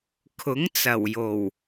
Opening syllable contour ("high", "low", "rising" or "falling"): rising